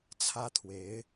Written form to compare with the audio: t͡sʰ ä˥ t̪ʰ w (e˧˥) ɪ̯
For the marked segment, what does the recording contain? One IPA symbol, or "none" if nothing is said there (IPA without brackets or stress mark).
e˧˥